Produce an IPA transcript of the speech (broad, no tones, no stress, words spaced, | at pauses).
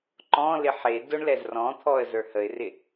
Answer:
ǃɔ̃lɪ ħe dʊɳlɛz rɔ̃t̪ʰɔə̯ zə˞həɪ̯rɪ